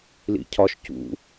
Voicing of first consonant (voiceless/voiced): voiced